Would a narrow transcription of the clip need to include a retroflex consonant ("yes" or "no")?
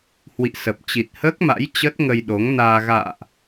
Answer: no